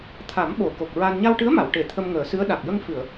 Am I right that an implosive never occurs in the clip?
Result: no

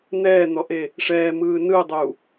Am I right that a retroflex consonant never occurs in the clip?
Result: no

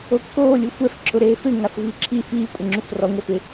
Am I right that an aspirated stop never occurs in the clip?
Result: no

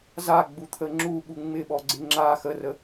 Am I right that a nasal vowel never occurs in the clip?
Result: yes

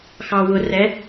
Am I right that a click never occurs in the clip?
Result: yes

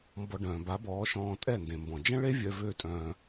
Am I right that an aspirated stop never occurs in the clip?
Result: yes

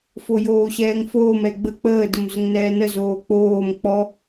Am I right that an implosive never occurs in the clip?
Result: yes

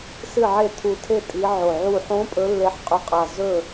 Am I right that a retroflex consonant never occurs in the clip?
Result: yes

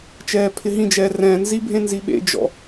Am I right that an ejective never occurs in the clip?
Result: yes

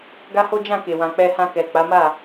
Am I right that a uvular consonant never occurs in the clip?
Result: yes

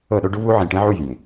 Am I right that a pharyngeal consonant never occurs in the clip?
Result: no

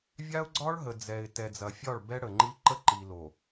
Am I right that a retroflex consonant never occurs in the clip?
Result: no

